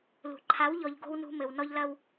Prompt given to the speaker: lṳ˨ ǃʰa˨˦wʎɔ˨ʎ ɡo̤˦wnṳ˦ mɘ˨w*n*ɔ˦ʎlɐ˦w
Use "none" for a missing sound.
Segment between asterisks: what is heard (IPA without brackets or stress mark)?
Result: n